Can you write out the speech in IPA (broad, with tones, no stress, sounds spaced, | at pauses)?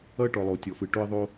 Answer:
ʌ˦ ʈ ɔ˨ lˠ o˨ tʲ ɔ˨ f ɯ˨ ʈ o˧ ə̯ ðˤ o˧